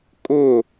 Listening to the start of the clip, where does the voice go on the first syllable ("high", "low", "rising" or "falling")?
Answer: falling